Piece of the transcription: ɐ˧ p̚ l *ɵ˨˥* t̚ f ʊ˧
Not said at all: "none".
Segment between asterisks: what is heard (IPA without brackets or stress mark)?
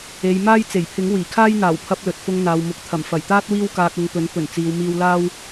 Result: ɵ˨